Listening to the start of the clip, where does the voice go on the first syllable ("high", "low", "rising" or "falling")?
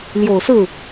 low